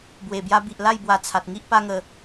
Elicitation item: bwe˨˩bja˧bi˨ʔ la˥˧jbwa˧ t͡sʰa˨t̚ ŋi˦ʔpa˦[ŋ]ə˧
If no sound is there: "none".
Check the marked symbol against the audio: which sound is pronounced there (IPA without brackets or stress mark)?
ŋ